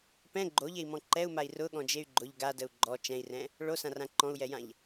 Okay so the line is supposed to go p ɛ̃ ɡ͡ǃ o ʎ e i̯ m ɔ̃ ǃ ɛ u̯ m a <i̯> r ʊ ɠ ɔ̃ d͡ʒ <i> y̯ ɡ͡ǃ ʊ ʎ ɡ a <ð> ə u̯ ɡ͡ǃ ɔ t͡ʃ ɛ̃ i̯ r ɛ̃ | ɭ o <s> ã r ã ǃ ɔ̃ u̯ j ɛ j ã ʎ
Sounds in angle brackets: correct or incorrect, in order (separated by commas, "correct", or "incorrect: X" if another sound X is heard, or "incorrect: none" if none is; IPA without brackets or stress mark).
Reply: correct, incorrect: e, incorrect: d, correct